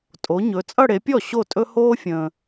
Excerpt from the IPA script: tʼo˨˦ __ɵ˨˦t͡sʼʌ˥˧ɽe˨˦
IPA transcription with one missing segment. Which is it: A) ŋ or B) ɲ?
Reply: B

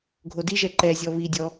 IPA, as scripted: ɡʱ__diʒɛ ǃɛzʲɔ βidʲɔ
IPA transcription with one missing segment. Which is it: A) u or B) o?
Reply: B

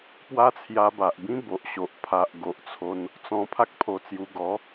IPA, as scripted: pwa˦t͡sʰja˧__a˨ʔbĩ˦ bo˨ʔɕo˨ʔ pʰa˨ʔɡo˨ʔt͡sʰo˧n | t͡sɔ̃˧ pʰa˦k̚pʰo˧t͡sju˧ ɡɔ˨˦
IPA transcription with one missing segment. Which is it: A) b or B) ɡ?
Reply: A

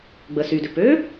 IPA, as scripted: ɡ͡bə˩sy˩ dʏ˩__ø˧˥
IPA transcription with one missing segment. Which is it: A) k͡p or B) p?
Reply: B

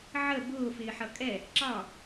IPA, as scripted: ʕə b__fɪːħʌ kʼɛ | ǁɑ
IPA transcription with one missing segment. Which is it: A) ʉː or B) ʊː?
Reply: B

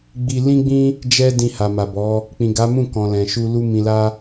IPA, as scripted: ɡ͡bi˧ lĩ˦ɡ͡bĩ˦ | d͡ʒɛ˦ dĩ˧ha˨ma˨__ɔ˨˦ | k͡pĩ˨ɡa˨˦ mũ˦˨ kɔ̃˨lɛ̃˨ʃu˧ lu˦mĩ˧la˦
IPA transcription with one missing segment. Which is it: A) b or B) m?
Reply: A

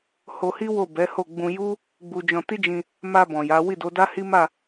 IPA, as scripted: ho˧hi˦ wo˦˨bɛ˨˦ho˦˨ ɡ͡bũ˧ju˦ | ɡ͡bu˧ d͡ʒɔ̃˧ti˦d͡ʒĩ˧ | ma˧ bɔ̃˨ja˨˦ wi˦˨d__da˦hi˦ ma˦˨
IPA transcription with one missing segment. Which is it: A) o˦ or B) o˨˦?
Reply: B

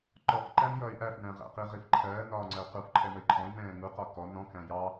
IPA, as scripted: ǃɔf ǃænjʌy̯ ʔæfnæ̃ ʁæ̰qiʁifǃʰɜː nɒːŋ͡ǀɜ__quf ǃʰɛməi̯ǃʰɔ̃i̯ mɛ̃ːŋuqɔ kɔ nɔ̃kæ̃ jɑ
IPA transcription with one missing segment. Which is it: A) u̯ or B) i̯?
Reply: A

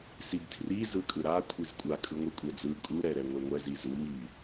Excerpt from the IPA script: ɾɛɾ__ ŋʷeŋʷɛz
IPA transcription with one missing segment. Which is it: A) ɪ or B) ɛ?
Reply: B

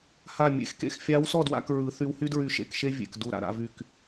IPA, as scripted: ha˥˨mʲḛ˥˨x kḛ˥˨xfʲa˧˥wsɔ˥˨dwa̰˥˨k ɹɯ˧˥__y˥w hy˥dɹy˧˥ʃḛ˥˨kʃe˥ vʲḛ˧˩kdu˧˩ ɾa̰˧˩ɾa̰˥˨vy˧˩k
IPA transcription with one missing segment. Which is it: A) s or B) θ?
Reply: B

